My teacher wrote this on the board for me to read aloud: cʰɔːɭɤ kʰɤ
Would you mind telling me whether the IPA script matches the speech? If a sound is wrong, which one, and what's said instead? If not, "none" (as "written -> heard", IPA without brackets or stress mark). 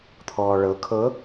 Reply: cʰ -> t̪ʰ